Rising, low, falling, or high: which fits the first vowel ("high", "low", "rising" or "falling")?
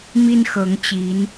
high